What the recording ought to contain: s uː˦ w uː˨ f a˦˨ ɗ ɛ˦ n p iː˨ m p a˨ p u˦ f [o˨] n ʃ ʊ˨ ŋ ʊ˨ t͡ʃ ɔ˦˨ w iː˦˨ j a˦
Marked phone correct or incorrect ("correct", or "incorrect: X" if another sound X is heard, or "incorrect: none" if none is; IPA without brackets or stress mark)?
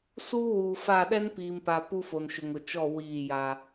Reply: correct